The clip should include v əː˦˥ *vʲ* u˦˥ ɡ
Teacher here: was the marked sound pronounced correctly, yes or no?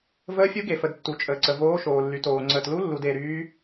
no